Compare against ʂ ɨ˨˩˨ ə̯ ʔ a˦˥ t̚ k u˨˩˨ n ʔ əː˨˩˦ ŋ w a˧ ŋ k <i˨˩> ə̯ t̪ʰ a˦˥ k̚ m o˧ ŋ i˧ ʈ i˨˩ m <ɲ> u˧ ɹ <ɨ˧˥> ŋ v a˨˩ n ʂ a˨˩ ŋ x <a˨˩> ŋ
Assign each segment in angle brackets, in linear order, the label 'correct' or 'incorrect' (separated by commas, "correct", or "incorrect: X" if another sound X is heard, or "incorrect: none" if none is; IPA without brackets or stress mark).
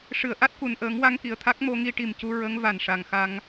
correct, incorrect: c, incorrect: ə˧˥, incorrect: a˧